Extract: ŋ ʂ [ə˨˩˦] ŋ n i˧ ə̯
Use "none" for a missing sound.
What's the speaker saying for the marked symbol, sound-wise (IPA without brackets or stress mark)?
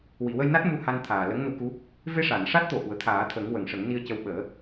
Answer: ə˨˩˦